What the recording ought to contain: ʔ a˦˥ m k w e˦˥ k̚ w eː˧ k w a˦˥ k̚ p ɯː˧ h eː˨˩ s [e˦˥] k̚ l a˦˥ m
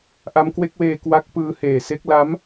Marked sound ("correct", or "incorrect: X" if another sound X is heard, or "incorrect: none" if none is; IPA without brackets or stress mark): correct